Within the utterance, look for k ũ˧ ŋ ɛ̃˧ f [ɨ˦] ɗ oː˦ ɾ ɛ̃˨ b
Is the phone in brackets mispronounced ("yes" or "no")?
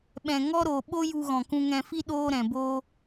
yes